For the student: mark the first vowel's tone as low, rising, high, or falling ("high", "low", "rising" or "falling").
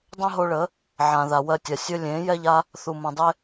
high